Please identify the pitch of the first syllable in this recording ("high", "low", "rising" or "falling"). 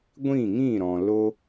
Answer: falling